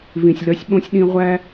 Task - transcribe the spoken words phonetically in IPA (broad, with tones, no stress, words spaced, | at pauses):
vĩ˨sʲlœ˧sʲɓõ˦sʲ ɗĩ˧ʁʷæ˦